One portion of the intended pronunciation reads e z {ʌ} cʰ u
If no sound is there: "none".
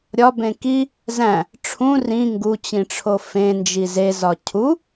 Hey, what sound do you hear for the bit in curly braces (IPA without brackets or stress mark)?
ɒ